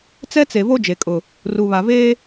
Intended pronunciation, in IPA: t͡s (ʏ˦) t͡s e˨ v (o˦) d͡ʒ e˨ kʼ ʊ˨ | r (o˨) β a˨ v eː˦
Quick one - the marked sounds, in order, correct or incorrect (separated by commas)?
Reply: incorrect, correct, incorrect